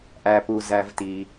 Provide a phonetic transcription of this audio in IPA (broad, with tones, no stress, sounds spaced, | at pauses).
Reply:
ʔ æ˩ p u˩ z æ˩ v t i˩